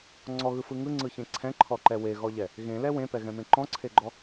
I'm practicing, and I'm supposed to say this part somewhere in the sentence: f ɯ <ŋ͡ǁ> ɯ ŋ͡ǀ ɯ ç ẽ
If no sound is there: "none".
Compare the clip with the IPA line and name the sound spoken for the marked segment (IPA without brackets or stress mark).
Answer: ŋ